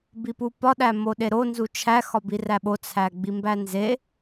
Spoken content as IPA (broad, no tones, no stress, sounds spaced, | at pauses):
b i p u p ɒ ɗ æ m o ɗ e ɾ o n z u t͡ʃʰ æ x ɒ b i r æ ɓ o t͡sʰ æ ɡ͡b i m b æ n z e